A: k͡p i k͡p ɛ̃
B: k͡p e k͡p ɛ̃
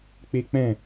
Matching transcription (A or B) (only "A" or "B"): B